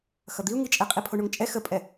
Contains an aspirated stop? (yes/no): yes